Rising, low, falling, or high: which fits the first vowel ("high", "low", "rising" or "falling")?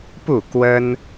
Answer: falling